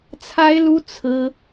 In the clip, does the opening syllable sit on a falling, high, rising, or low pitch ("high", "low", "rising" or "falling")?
high